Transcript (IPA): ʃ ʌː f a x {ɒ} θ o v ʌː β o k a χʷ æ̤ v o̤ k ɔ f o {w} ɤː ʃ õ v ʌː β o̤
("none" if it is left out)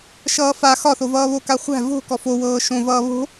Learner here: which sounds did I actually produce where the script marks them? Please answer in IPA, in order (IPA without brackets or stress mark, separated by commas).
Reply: ɒ, w